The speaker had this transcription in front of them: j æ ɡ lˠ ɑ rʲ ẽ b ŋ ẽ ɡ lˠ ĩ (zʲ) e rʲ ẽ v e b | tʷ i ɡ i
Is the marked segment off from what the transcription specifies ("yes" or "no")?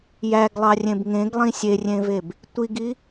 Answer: yes